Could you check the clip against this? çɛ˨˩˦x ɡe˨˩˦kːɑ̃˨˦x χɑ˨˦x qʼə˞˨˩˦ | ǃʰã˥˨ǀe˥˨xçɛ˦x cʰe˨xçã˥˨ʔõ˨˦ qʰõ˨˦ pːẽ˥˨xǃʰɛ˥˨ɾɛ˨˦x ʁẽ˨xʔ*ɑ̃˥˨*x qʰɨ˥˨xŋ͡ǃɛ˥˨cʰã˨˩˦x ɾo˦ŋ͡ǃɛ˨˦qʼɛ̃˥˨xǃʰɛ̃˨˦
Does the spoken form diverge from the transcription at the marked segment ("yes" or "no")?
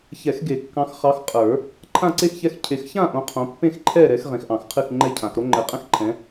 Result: yes